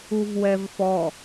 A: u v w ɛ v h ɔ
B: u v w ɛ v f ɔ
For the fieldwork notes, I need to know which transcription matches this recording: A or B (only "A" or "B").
B